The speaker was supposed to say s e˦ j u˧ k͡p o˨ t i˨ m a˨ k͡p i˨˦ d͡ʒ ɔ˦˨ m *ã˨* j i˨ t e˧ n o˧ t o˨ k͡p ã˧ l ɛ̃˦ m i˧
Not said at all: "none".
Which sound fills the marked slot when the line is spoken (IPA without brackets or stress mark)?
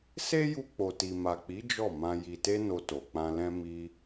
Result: ã˧